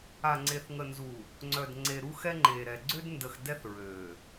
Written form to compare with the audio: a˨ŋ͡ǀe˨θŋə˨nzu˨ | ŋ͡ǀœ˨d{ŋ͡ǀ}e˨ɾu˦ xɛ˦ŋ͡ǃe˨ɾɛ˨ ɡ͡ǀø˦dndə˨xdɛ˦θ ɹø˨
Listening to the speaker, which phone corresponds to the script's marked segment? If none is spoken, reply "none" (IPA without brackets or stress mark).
ŋ͡ǀ